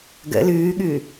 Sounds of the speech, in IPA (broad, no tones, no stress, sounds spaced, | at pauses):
ɡ ə̰ l ʉː ɠ ʉː